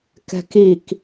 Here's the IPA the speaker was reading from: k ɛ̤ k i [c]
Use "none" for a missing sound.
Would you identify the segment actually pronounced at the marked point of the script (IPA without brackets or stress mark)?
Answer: k